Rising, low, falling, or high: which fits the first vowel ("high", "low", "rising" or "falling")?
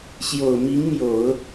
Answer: low